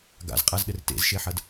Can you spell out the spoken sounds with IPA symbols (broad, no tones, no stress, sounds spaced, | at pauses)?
ɡ a̰ z qʼ a z ɗ ɘ r t ḛ z ʃ e ħ ɐ d